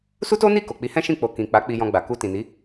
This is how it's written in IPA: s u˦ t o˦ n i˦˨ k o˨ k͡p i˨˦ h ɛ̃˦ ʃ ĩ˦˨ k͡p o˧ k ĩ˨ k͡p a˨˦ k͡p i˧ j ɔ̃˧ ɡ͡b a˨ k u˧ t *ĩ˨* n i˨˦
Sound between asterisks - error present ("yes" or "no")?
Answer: no